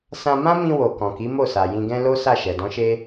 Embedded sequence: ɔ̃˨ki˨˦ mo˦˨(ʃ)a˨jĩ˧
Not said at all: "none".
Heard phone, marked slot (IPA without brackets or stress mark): s